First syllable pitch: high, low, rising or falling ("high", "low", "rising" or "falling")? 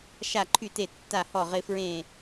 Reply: falling